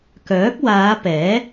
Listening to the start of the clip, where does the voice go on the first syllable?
rising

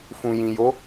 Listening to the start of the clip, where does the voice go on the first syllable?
low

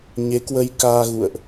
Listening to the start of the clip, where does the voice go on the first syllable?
rising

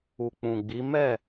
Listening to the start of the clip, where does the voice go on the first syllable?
low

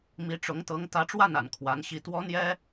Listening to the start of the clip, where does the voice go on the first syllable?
rising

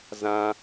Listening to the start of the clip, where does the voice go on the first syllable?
high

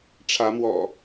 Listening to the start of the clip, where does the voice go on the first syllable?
rising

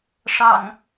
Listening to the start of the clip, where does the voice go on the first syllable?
low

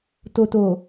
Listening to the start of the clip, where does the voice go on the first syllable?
low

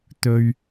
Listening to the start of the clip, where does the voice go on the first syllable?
high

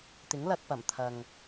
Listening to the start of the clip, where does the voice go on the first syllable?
rising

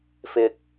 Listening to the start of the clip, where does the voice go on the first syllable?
low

